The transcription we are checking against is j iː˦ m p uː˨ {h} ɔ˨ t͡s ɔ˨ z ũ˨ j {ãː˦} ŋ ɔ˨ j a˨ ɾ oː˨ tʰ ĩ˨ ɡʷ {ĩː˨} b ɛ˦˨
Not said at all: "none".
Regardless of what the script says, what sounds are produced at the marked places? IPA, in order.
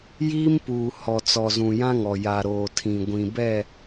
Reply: h, ã˦, ĩ˨

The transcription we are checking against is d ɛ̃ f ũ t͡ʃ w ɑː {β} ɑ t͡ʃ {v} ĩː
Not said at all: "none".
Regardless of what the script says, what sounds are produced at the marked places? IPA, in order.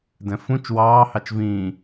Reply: h, v

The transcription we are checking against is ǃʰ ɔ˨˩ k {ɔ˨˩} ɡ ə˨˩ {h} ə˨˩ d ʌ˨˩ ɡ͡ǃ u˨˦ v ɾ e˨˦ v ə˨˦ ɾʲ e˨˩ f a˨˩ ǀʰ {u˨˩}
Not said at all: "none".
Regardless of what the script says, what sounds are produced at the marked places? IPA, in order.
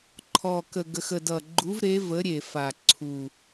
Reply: ə˨˩, x, u˨˩

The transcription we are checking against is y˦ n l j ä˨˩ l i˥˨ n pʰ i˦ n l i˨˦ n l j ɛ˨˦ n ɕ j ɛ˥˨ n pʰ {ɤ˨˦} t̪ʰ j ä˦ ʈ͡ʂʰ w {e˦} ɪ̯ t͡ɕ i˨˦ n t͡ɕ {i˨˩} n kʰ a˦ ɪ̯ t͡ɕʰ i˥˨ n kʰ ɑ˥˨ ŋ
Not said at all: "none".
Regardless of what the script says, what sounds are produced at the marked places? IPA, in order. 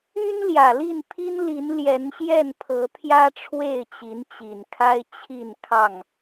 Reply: ɤ˨˦, e˥˨, i˨˩

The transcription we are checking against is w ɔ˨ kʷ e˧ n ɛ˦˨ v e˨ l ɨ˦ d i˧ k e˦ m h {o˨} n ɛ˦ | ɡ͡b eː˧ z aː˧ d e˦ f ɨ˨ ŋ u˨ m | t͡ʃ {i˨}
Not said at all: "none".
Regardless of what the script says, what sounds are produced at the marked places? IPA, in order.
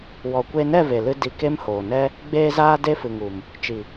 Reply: oː˨, i˨

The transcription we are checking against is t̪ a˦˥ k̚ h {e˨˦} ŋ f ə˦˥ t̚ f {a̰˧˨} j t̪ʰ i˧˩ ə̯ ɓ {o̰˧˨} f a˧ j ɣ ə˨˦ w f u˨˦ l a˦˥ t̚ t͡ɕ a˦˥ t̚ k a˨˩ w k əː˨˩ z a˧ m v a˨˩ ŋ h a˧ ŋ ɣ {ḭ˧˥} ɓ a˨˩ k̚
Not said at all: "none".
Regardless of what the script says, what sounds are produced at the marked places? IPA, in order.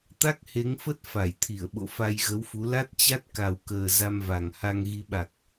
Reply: e˨˦, a˧˩, o̰˧˨, i˨˦

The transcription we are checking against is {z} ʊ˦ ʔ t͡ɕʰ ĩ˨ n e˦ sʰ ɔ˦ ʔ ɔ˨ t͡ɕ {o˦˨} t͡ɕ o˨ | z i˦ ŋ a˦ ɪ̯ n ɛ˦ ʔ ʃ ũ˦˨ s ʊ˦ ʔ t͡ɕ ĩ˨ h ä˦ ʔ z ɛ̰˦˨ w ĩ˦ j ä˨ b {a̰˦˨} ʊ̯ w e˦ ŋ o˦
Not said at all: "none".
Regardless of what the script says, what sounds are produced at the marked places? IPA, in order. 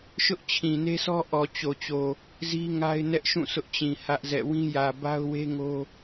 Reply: ʃ, o˨, a˦

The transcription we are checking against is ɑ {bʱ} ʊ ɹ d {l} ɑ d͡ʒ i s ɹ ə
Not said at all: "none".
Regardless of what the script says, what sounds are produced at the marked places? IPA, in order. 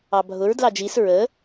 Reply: bʱ, l

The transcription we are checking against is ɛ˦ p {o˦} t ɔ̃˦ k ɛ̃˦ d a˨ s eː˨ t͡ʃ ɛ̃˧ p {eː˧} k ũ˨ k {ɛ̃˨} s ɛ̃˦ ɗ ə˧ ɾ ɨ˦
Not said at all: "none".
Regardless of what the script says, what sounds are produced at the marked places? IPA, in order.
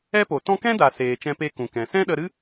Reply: o˨, e˧, ɛ̃˨

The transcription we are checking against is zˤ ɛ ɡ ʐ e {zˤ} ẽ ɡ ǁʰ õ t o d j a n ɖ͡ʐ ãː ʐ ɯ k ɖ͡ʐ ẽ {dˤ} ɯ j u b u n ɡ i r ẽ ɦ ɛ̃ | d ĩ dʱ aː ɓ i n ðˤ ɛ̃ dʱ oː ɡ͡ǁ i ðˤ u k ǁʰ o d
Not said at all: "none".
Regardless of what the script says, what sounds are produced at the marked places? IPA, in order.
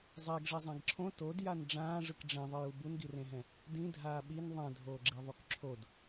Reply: zˤ, ðˤ

